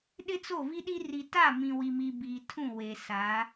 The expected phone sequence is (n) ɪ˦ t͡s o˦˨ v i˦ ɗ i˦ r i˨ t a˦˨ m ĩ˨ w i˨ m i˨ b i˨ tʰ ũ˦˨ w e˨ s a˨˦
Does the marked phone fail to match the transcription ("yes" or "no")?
yes